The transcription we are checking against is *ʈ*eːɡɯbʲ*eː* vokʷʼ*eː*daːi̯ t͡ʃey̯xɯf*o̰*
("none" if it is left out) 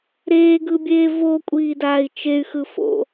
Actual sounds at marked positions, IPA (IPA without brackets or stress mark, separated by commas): ɾ, eː, iː, o̰